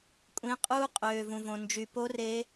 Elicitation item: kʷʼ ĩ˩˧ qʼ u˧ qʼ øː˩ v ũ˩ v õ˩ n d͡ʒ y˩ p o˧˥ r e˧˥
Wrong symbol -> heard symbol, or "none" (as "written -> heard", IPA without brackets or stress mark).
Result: none